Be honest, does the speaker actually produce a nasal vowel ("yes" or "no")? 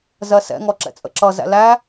no